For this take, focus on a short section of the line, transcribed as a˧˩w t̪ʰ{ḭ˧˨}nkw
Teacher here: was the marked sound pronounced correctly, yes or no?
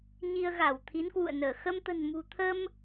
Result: no